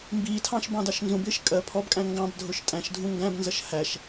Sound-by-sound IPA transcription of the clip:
mbiːtʰɑ̃ʃ bɑ̃dɑʃnzũbɪːʃ kʼɜ pʰɔbkʼæ̃ ŋɡɑ̃b dʱʊʃtʼæ̃ʃdʱũ ŋɡæ̃bnzʌʃ hæʃ

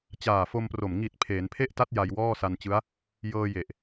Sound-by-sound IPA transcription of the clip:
t͡ɕaː˨˩fo˧mpro˨˩m ŋi˨˩t̚ pʰeː˩˦npʰe˥˩ʔta˦˥t̚ ja˧jwɔː˥˩sa˧n t͡ɕɯ˦˥a̯ | jɤː˧je˨˩ʔ

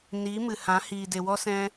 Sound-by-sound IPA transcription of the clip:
ni˨˦ mɨ˨hã˨˦ hiː˨de˨wɔ˦ sɛ̃˦

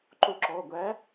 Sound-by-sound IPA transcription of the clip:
ǃo˧ǁɔ˩˧˩ ɡʷæ˨˥

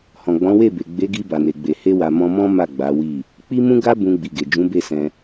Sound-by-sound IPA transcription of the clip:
hɔ̃˨ɡ͡bɔ̃˨˦we˦˨be˨ ɡ͡be˨˦ɡi˧ ba˨ne˨ɡ͡be˨ he˧wa˨ mɔ̃˧mɔ̃˦ ma˦˨ɡ͡ba˨˦wi˦˨ | k͡pi˦mũ˦ ɡa˦ bũ˧ɡ͡bi˨ ɡe˨d͡ʒũ˨˦be˦˨sɛ̃˧

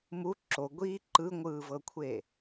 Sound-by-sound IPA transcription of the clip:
mu ǁoɡʷiː ǃɯŋʷɯːvɤkʷʰe

